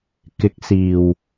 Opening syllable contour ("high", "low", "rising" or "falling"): rising